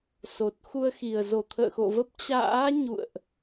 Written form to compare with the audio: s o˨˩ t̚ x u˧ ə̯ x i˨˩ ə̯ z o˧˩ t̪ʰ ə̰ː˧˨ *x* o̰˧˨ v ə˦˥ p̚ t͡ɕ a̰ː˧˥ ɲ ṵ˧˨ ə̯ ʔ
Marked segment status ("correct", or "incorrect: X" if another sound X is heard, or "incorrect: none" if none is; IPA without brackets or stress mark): correct